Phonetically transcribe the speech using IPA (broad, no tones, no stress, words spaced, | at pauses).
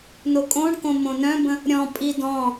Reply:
nokʼõɳkõ mõnœ̃bə̃ | ɾʲɔ̃pʼi dɔ̃